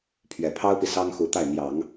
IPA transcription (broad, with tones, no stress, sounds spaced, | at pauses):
pʰ ɥ ɛ˨˩ pʰ ɑ˥ ʊ̯ p i˨ s ɑ˥ ŋ x u˧˥ t̪ a˥˩ ɪ̯ n̪ j ɑ˨˩˦ ŋ